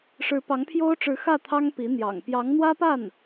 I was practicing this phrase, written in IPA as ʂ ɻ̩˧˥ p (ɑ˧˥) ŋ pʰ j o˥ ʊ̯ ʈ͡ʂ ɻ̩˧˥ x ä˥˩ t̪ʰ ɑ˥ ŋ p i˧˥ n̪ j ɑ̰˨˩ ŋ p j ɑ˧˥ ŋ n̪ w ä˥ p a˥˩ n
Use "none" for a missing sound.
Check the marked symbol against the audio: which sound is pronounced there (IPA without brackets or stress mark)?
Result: ɑ˧˥